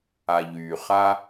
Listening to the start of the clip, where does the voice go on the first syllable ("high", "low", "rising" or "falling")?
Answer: low